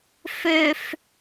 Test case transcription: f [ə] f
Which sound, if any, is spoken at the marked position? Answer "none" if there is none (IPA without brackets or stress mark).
ø